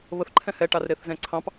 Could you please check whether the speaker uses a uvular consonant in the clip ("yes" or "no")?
no